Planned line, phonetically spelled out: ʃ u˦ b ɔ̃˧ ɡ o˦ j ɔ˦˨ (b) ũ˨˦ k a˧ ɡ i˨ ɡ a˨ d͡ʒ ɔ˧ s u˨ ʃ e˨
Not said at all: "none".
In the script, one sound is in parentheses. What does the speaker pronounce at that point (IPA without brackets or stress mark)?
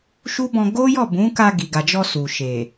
b